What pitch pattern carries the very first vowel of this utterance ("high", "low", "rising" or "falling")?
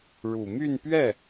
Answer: low